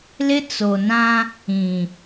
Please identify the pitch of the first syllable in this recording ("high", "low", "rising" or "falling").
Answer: high